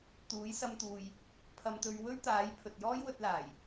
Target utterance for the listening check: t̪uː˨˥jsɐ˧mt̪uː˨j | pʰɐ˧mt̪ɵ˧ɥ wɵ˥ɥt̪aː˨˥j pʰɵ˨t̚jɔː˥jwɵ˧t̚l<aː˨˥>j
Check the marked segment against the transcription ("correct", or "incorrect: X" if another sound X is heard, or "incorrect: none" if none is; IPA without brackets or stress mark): incorrect: aː˨˩